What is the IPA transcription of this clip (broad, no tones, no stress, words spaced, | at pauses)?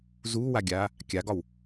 zuːwaɡʲaː | kʲaɡɒw